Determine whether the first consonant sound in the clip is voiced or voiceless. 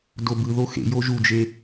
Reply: voiced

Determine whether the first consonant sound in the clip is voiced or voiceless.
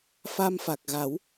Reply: voiceless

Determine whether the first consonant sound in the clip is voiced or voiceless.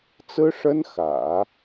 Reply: voiceless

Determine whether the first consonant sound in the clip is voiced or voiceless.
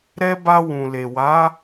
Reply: voiced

